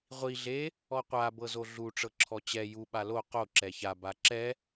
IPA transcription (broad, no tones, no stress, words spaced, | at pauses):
ʁʷi ɮe | ɔqʷa bɤzoɮu ʈ͡ʂɤǁʰɔt͡ɕɛ ju ɓalo qo ǁɛça baǁɛ